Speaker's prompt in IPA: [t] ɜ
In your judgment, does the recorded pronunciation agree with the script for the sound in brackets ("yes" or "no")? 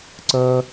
no